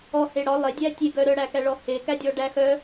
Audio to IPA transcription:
ɔhe ɽɒ lˠedʲæ tʲeɡœ ɾœɽækæɭɔ hekædʲɔɖæ xœ

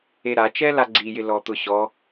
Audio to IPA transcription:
eɾat͡ʃɛ laɡ͡ǀijɪ lɔt̪ʊɕɔ

